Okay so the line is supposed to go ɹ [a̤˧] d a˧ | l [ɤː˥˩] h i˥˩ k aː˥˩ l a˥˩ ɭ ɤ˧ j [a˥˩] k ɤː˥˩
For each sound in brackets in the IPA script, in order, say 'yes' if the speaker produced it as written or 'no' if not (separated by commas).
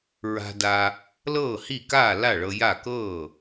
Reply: yes, yes, yes